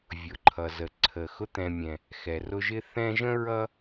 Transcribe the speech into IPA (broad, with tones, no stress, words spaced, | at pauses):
vʲʊ˩ǃʰʌ˩zə˩ǀʰə˩ xʊ˦t̪ɛ̃˨mʲɛ̃˩ | xɛ˩rʊ˦ʒɪ˥ θɛ̃˦ʒə̃˥ ɹʌ˦